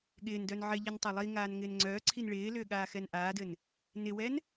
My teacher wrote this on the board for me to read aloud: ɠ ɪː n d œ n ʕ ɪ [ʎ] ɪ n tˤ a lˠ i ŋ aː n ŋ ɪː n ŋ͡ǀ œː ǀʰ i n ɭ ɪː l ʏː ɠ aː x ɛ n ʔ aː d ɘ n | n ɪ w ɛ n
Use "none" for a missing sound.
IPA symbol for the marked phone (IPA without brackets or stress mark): ʎ